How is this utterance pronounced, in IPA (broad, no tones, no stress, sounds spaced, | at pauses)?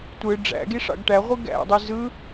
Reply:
tʷ ɯ ɖ͡ʐ æ̰ ɡ i ʂ ɑ̰ ɡ ʈ æ ʁʷ ɯ ɡ æ̰ dˤ i z ɯ